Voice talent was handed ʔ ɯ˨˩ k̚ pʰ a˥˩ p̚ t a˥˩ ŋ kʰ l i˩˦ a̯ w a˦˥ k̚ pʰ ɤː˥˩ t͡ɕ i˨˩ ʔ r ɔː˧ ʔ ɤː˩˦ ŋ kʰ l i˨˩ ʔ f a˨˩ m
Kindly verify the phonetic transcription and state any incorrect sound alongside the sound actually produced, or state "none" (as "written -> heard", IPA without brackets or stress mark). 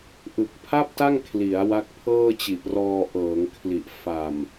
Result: none